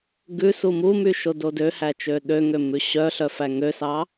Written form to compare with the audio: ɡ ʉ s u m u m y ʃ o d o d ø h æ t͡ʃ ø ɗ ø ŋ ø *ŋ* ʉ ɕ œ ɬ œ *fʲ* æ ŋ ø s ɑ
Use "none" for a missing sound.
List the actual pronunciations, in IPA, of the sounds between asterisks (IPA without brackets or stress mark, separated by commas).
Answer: m, f